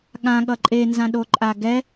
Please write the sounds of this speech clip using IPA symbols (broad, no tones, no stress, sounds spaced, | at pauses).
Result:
ɠ ã ɠ ʌ ǃʼ e n z ã ɗ o ǃʼ a ɡ ɛ